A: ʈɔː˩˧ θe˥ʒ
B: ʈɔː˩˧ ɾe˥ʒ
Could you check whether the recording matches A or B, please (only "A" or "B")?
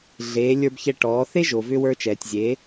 A